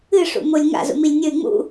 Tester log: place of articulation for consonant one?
retroflex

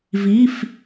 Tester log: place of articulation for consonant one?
labial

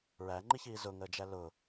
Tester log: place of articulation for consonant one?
alveolar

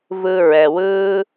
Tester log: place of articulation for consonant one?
labial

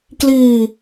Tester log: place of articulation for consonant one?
velar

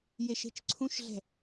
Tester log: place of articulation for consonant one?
palatal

